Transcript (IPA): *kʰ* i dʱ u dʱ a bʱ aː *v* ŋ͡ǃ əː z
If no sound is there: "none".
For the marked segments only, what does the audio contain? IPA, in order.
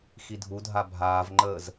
x, v

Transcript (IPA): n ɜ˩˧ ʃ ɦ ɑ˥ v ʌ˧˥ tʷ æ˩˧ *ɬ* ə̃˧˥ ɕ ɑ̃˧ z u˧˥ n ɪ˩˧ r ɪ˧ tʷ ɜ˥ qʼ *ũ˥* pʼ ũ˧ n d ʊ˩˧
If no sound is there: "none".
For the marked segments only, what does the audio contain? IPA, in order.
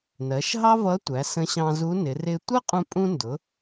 s, ũ˧

